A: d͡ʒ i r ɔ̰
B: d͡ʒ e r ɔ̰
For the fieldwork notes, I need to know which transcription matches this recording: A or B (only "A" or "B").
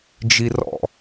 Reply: A